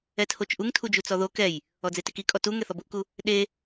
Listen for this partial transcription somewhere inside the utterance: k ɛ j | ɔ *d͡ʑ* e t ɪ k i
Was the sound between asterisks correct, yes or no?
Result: no